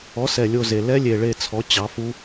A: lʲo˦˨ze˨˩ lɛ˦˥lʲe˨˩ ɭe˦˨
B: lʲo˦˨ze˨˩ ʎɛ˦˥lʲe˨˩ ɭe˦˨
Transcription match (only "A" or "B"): A